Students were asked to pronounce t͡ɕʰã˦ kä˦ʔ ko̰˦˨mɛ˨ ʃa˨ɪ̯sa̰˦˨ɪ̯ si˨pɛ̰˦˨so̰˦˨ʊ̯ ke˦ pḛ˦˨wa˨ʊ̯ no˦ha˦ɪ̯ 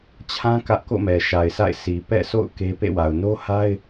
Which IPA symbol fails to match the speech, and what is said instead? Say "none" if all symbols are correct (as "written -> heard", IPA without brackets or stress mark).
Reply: none